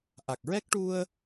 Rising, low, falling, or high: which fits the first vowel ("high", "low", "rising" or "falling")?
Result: low